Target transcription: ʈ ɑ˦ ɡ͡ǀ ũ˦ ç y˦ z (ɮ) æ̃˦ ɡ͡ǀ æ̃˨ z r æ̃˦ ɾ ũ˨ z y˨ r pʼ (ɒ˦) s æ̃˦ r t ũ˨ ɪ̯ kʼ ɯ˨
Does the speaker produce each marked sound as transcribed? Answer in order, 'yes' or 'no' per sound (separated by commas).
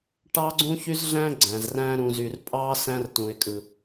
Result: yes, no